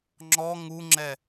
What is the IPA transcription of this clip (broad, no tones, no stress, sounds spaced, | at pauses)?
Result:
ŋ͡ǁ ɔ ŋ u ŋ͡ǁ ɛ